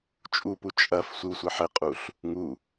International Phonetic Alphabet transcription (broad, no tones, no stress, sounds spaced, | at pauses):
t͡ʃʼ u p u t͡ʃʼ ɐ f sʷ ɨ w sʷ ɘ ħ ɘ qʼ u ɬ | ŋ u